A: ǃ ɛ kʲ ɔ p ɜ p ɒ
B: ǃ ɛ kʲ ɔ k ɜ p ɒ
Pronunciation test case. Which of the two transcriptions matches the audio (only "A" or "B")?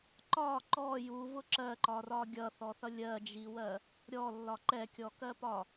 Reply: B